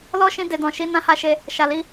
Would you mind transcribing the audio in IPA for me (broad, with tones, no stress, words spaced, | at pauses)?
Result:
lɔ˦ ʃĩ˧de˨dɔ̃˨ ʃi˧ nã˦ha˦˨ʃe˧ | ʃa˨li˨˦